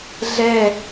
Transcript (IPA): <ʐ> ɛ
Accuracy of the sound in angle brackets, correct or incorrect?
incorrect